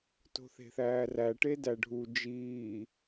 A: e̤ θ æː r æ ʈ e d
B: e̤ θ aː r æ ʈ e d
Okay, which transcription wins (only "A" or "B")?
A